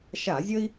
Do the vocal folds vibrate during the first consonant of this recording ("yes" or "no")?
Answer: no